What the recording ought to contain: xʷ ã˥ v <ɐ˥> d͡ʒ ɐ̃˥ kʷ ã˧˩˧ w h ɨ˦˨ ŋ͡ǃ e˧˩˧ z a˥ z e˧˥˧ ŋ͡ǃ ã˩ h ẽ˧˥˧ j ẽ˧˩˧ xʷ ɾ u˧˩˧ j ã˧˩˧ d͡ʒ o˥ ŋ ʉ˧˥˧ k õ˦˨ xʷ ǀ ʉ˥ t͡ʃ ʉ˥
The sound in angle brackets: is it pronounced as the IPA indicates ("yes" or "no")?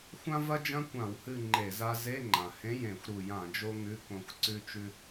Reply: yes